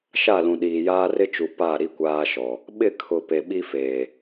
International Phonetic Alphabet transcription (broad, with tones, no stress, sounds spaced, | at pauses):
ʃ a˦˨ l ũ˨ ɗ iː˨ j aː˦ r ɪ˦ t͡ʃ u˨ p a˦˨ ɾ i˦ kʷ aː˦ ʃ ɔ˨ | ɓ ɪ˦˨ kʰ ʊ˨ p e˨ ɓ i˦ f eː˨